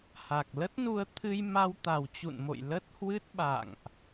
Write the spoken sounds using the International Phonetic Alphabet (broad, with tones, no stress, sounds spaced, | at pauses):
h a˨˩ k̚ l ə˦˥ t̚ n u˧ ə̯ t̪ʰ ɨ˧ j m a˧ w t̪ a˨˩ w t͡ɕ ṵ˧˨ n m o̰˧˨ j l ə˦˥ t̚ h w ɨ˦˥ t̚ ɓ a̰˧˨ ŋ ʔ